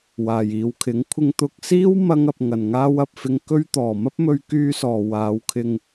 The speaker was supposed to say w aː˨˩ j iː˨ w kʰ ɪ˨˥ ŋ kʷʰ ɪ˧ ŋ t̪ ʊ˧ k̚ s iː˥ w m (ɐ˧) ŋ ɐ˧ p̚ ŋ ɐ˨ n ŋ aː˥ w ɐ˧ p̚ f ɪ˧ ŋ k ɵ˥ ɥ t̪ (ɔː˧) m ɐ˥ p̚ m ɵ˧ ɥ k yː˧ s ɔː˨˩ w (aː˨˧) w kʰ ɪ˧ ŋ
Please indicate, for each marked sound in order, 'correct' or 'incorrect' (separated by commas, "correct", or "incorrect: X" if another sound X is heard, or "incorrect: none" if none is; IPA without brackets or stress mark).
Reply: incorrect: ɐ˥, incorrect: ɔː˨˩, correct